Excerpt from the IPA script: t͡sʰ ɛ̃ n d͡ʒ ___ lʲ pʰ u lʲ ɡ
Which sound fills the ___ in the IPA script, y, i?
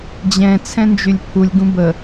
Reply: y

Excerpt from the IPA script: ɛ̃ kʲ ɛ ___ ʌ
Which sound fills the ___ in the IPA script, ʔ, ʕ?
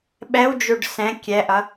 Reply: ʔ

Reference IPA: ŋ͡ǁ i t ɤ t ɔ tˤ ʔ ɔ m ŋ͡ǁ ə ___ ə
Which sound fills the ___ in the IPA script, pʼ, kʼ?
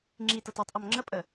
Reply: pʼ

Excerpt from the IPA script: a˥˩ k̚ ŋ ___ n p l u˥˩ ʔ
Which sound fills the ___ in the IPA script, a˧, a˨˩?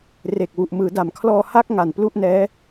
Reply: a˨˩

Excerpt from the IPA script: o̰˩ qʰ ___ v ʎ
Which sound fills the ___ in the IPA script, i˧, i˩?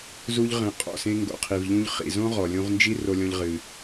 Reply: i˩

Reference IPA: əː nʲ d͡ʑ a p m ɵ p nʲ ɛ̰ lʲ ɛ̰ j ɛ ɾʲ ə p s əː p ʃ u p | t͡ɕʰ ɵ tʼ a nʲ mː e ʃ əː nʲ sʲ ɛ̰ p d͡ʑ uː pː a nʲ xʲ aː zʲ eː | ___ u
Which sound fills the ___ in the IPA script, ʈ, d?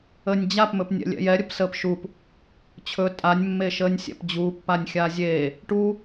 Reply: ʈ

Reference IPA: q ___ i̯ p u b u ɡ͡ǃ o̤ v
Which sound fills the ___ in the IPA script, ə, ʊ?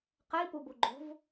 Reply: ə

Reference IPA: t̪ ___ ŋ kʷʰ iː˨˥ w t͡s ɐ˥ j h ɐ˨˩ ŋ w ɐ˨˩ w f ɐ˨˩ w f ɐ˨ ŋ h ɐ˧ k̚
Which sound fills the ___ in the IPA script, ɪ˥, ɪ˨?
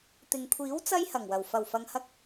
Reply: ɪ˨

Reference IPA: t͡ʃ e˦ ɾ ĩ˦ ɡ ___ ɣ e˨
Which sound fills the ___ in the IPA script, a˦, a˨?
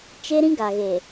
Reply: a˨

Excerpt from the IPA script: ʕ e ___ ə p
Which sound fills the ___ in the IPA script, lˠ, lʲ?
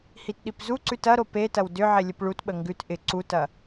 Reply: lʲ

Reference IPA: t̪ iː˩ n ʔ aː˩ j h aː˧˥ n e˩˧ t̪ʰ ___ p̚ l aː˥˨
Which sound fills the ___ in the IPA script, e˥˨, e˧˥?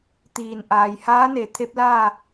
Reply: e˧˥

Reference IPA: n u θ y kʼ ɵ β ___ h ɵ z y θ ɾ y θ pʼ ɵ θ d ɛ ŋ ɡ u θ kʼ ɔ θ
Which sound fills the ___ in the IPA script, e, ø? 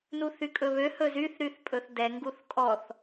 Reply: ø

